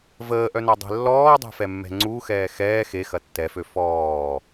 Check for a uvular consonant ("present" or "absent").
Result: absent